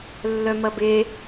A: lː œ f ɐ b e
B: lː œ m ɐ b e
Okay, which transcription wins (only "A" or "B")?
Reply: B